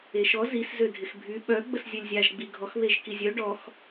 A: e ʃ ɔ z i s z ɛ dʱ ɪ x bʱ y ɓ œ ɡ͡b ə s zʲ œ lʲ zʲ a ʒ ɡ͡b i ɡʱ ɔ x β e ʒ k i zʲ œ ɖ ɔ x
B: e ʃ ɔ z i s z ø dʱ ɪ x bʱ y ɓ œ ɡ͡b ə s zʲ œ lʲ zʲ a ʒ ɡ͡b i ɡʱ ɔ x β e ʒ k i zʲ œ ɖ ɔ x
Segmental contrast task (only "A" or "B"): B